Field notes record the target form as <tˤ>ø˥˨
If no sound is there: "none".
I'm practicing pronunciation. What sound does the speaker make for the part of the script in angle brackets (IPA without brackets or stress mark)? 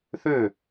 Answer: θ